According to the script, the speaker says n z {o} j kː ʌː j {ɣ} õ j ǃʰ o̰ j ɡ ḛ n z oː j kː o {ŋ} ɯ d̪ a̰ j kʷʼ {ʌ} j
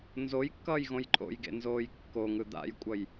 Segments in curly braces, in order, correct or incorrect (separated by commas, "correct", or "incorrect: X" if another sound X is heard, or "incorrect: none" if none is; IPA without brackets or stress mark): correct, correct, correct, correct